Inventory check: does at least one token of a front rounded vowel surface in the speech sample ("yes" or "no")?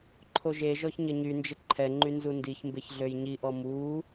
yes